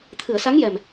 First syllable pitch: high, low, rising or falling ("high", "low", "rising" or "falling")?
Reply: low